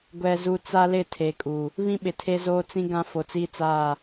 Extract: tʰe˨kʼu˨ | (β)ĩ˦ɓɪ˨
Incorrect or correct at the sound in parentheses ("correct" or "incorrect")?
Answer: correct